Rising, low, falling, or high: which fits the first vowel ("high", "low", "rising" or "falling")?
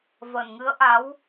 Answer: low